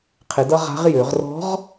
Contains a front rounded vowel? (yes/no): yes